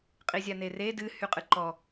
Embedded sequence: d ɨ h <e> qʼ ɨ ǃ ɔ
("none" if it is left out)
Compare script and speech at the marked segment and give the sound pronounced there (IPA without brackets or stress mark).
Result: y